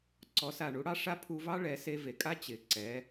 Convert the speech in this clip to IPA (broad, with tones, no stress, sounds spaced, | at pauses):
ǀ ɔ˩˧ s a˩ ɳ u˩˧ ɽ ɑ˧ ʂ a˧˥ pʰ u˧ v ɑ˥ ɭ ɛ˩˧ s e˧ v e˩ kʼ a˥ t͡ɕ ɪ˩ ǀ ɛ˩˧